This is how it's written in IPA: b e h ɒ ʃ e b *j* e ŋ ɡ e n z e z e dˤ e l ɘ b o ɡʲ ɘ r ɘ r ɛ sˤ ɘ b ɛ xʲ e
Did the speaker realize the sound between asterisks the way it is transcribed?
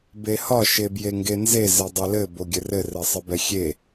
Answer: yes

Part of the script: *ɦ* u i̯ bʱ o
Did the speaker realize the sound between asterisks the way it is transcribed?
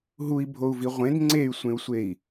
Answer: yes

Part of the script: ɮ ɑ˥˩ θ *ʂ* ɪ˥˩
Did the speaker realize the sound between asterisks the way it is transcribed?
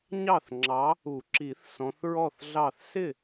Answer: no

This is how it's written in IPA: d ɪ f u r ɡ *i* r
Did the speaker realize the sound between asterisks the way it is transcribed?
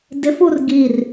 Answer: yes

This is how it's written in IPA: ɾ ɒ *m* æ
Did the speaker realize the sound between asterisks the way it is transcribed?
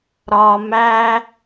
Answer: yes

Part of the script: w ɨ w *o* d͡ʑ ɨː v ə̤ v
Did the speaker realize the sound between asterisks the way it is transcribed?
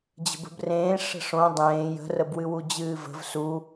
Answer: no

